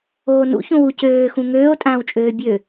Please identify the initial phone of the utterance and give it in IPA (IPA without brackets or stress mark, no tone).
oː